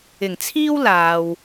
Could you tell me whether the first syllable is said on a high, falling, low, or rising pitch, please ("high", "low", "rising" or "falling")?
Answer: low